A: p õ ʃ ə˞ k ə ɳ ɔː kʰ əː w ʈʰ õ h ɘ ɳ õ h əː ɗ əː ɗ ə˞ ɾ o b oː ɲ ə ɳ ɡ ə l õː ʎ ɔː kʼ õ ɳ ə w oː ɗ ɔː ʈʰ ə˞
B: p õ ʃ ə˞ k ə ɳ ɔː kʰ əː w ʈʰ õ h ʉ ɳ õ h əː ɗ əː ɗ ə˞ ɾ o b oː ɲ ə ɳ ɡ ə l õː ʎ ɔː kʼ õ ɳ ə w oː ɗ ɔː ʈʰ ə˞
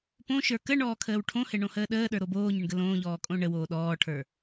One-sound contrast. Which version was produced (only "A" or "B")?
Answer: A